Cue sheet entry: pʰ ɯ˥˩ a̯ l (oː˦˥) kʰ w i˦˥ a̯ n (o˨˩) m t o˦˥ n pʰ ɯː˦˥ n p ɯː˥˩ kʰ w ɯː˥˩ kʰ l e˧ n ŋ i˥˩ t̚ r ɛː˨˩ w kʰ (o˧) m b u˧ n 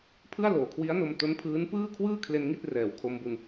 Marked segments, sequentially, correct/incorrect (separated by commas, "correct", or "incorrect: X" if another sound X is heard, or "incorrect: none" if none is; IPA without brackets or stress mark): incorrect: oː˨˩, incorrect: o˧, correct